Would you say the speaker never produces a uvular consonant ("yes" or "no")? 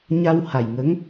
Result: yes